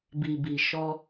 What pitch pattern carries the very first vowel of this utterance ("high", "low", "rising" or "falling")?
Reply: low